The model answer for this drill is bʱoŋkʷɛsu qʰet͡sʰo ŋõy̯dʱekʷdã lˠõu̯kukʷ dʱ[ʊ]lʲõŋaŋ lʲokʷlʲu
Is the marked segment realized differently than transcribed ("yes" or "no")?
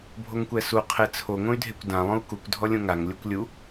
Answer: yes